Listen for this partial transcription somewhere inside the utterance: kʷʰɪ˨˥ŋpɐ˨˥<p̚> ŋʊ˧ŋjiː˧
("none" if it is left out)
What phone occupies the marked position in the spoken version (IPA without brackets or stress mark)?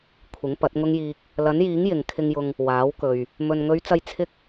t̚